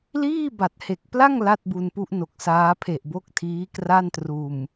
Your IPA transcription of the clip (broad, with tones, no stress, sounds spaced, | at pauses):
l iː˥˩ b a˨˩ t̚ h e˨˩ k̚ p l a˥˩ ŋ l a˥˩ t̚ b u˧ n p u˦˥ ʔ n o˨˩ k̚ s aː˦˥ pʰ e˨˩ ʔ b o˦˥ k̚ tʰ iː˦˥ k r a˥˩ n t r uː˨˩ m